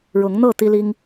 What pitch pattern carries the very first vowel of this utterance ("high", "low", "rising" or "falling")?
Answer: rising